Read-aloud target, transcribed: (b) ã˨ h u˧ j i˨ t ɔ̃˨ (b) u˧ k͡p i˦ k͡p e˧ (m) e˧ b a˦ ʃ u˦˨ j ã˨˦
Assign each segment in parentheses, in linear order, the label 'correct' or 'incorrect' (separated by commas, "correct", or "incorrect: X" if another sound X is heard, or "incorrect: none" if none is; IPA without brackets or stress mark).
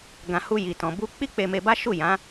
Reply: incorrect: ɡ, correct, correct